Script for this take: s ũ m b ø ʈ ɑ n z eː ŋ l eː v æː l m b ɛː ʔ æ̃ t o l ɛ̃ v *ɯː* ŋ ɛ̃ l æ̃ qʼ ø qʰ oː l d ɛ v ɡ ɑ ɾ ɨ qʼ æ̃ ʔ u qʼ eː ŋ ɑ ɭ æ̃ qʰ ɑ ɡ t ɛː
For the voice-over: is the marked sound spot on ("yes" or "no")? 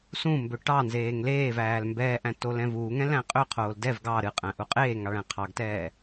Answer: no